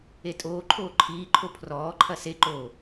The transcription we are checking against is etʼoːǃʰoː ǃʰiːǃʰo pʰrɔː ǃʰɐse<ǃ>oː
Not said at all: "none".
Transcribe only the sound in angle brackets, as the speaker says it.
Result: ǃ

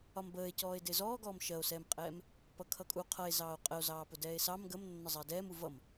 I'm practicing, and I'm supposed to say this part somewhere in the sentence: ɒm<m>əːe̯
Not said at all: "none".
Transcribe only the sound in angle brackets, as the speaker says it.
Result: b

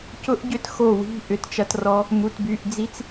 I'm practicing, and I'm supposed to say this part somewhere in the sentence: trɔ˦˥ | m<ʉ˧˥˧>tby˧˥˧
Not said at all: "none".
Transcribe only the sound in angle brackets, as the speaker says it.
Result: u˧˥˧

